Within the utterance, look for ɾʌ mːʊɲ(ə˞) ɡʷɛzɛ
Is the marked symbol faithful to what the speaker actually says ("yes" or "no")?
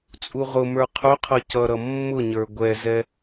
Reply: yes